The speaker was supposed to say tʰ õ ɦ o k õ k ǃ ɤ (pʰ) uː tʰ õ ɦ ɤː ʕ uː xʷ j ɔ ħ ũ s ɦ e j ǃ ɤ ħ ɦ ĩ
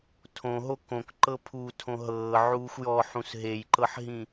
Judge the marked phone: correct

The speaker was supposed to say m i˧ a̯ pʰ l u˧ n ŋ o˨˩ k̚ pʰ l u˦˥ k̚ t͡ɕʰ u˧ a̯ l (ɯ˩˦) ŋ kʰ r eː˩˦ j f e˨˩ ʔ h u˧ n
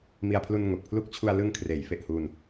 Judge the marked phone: incorrect: ɯ˧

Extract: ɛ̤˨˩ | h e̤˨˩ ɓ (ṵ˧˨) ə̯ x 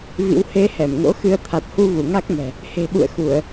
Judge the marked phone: correct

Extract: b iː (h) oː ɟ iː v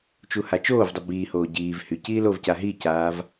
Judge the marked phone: correct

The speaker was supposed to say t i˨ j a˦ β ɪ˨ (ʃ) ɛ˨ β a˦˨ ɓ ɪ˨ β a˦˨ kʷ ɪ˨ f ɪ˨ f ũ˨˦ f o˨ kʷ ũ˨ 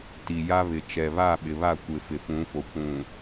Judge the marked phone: incorrect: t͡ʃ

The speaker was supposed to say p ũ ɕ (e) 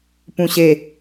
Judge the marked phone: correct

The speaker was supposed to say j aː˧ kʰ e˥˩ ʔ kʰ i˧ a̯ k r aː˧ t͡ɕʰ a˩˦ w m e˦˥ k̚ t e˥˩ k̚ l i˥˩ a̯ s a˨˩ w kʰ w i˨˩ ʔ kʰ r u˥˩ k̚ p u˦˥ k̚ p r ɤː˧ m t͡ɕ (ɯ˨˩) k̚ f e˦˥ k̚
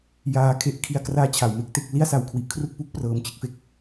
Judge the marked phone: incorrect: ɯ˥˩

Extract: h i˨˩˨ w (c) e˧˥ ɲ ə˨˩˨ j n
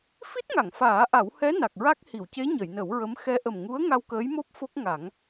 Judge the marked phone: correct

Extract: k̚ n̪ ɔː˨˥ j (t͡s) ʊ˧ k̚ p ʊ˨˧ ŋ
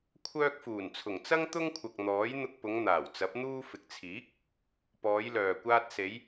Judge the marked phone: incorrect: n̪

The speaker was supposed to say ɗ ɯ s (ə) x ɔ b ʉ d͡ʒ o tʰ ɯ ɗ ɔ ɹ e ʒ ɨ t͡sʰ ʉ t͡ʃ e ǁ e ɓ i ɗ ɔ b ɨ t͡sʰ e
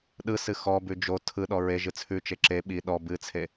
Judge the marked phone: incorrect: ɨ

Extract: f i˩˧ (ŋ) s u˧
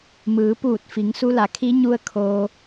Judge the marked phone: correct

